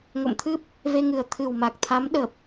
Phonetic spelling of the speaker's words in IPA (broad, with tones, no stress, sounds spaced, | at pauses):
ŋ o̰˧˨ m t̪ʰ ɨ˦˥ p̚ | v e˧ ŋ ɨ˨˩ ə̯ t̪ʰ ɨ˨˩ w m a˨˩ k̚ t̪ʰ a˨˦ m ɗ ə˨˩ p̚